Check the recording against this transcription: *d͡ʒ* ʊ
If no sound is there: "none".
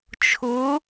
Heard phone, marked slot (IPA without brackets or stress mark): t͡ʃʰ